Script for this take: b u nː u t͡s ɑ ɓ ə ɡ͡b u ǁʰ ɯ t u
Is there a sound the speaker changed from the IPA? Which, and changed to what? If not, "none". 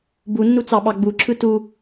ə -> ɑ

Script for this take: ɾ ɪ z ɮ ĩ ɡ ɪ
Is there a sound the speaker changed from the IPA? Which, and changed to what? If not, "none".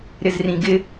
ɮ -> r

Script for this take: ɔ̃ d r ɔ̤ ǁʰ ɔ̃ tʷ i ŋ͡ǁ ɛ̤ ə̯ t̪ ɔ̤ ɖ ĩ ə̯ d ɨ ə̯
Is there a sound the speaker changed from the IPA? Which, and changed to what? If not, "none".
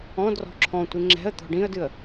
none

